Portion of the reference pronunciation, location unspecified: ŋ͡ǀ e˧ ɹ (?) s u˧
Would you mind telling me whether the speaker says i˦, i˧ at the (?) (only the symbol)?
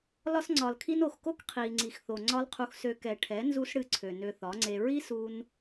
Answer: i˦